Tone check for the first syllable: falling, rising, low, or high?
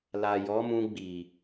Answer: low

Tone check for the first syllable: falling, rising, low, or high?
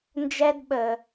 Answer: high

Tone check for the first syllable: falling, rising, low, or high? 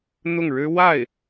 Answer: falling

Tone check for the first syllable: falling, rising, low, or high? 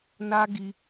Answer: high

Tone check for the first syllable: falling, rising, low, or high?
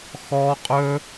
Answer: high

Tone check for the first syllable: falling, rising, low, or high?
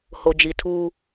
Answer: low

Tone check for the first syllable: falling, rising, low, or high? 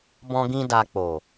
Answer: high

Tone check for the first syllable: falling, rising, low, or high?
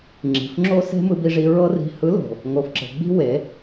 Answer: low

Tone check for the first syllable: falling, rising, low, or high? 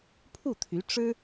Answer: falling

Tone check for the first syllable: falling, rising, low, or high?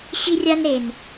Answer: high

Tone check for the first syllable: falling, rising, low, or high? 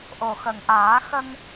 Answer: low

